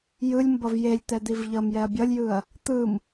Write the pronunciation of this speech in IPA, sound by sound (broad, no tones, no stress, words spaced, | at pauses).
jɯlʲmbʌv jelʲt̪ɛ d̪ivʎʌmjɛɐ̯ bʲʌlʲjɯɐ̯ | t̪ɯm